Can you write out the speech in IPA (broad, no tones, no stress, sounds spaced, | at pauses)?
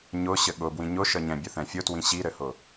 ɲ ʊ ɕ ɘ ɠ ʊ b w ĩ ɲ ʊ ʃ ə ɲ ɛ̃ bʲ ə θ ɛ̃ fʲ ʊ t w ĩ ɕ i ɾ ɘ h ʊ